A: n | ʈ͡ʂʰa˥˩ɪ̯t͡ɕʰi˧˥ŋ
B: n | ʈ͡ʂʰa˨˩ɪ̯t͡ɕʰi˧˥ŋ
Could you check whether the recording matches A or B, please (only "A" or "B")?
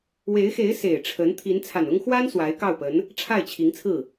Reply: A